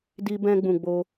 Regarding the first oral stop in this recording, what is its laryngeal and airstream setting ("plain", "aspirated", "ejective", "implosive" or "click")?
plain